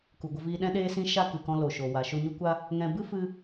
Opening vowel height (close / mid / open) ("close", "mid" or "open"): close